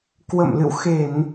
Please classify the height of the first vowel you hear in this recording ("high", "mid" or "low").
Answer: mid